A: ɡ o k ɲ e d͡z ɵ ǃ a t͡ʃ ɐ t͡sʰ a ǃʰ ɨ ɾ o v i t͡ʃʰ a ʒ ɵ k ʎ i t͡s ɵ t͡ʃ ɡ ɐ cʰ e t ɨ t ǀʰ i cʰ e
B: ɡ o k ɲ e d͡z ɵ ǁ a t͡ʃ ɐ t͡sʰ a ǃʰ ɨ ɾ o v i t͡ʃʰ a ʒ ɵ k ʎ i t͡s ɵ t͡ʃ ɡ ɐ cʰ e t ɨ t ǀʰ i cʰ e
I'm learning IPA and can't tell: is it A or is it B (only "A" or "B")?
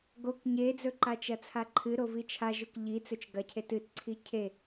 A